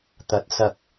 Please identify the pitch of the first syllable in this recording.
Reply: rising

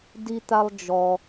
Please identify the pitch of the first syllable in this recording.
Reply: high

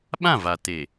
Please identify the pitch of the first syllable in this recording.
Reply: falling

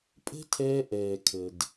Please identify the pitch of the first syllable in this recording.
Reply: high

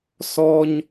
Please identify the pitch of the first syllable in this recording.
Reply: high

